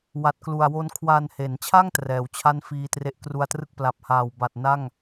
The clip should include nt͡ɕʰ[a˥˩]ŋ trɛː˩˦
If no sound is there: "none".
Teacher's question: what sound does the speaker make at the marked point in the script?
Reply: a˥˩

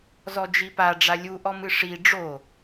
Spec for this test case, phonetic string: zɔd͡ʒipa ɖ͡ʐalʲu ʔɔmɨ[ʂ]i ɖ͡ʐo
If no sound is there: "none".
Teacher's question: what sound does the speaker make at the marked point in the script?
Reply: ʂ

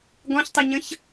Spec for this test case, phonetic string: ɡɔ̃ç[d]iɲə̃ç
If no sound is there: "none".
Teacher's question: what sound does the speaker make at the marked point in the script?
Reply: tˤ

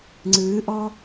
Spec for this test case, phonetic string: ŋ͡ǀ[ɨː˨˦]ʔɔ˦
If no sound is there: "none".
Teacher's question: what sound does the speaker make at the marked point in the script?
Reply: ɨː˨˦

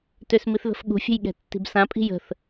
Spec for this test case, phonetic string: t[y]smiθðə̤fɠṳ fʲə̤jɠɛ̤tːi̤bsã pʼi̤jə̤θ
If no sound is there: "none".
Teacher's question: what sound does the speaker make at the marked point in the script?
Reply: ø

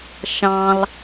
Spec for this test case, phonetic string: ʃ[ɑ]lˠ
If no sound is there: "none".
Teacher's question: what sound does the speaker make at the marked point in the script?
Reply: ɑ̃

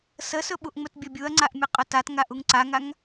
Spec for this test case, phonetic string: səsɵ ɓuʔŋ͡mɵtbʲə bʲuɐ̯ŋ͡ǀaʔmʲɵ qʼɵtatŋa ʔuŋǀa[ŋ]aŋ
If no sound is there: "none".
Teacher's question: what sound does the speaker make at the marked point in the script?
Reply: ŋ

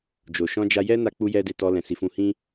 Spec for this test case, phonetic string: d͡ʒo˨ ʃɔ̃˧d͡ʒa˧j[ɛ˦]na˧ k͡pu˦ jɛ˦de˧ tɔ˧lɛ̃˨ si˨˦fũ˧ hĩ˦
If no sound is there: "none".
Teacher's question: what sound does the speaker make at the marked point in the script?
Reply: ɛ˦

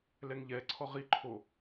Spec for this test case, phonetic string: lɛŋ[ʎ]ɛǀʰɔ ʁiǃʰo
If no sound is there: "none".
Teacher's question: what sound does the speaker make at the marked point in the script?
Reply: ʎ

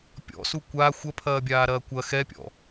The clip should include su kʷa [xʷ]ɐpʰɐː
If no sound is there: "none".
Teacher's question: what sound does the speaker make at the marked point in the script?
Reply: xʷ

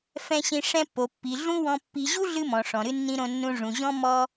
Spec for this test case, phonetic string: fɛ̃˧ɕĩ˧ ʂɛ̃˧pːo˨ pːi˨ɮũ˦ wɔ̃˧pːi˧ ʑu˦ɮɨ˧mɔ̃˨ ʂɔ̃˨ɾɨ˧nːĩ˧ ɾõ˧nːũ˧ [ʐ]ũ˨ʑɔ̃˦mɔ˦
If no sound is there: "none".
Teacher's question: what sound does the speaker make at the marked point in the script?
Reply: ʐ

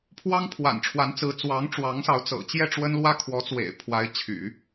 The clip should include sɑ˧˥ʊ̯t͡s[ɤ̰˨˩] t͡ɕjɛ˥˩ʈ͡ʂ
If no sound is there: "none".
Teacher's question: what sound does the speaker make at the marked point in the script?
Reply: ɤ̰˨˩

